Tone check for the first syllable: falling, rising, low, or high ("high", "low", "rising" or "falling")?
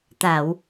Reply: low